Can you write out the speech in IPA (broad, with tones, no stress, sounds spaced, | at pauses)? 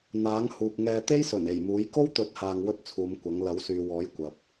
n̪ aː˨˥ ŋ h uː˨ k̚ ŋ ɛː˧ t̪ e˥ j s ɵ˨˩ n e˨˩ j m uː˨˥ j k o˥ w t̪ ɵ˨˥ t̚ h aː˨ ŋ w ɵ˧ t̚ t͡sʰ uː˨˧ m kʷ ɐ˨˥ ŋ l ɐ˨˥ w s yː˨ w ɔː˨˥ j kʷ ɐ˨ p̚